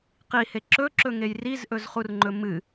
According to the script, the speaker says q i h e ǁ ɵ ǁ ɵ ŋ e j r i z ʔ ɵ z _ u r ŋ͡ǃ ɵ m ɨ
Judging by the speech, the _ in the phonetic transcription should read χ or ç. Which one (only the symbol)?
χ